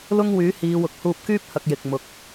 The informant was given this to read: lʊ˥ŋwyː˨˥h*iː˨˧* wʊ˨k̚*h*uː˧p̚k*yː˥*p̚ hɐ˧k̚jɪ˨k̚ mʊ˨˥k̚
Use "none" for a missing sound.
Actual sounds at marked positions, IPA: iː˨˧, h, yː˥

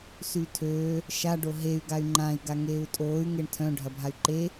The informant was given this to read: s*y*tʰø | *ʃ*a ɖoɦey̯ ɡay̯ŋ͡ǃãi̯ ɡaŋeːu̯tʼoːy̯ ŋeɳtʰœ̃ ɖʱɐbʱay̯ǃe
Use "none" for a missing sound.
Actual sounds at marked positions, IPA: y, ʃ

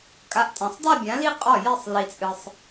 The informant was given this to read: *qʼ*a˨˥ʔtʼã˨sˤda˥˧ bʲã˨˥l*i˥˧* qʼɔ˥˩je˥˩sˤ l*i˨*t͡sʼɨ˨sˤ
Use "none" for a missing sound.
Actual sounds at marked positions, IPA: kʼ, i˥˧, i˨

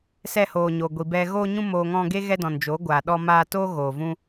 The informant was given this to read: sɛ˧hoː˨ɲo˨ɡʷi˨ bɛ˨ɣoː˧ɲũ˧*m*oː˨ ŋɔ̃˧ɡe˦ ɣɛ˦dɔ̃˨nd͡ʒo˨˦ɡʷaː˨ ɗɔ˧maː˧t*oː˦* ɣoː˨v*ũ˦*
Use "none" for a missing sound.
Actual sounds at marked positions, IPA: m, oː˦, ũ˦

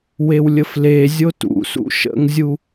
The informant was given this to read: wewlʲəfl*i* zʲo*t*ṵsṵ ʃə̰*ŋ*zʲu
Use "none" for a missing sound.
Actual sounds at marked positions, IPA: e, t, ŋ

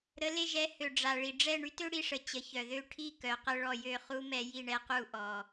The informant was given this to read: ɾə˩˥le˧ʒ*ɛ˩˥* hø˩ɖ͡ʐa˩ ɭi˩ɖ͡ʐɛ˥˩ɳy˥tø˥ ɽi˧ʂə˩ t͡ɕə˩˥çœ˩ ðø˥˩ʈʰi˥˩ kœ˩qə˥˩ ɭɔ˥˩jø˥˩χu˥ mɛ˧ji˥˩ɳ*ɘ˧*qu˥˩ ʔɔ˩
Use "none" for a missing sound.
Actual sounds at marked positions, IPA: ɛ˩˥, ɛ˧

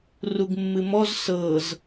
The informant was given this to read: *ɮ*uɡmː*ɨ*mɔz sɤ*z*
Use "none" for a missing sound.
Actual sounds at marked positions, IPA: r, ɨ, z

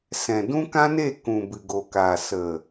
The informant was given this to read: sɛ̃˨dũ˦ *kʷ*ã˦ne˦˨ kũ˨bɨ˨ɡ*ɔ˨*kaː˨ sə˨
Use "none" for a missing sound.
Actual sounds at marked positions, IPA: k, o˨

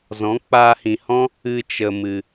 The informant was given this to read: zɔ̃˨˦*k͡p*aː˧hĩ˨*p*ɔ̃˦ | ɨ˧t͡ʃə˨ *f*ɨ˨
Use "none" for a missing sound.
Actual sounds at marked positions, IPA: k͡p, h, m

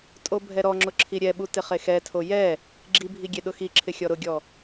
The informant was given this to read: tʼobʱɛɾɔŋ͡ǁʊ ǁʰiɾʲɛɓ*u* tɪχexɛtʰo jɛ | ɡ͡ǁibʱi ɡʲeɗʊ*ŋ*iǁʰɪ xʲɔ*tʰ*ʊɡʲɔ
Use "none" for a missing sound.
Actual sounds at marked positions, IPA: u, x, ɾ

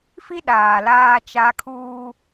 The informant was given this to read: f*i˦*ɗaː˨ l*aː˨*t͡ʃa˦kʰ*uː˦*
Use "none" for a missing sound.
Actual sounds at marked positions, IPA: i˦, aː˦, uː˦

